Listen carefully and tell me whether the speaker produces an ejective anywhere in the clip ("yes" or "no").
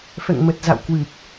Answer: no